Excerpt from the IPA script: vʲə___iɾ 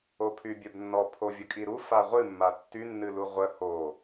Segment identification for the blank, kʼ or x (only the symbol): kʼ